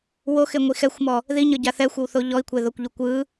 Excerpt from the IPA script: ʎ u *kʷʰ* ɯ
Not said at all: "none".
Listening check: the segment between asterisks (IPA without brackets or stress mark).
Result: kʷ